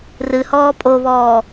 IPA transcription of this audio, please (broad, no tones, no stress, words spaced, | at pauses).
rɨhɔː pʼoβɔː